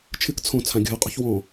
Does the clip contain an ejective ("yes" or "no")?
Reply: yes